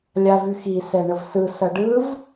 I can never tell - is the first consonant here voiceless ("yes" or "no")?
no